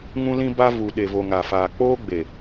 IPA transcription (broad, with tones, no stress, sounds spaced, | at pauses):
ŋ ũ˦ l ĩ˦ b a˦ v u˨ ɗ e˨ v o˨ ŋ a˨ f aː˨ k͡p oː˦ ɡ͡b e˨